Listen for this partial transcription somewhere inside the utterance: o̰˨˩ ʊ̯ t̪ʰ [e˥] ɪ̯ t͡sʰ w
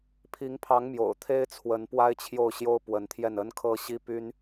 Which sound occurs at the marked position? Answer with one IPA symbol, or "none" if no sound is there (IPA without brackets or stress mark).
e˥